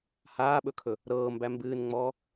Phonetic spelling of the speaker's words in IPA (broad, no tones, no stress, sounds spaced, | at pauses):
h aː ɓ ɵ kʰ ɵ | ɾ ɤː m b æ m b ɨː n ŋ͡m ɔː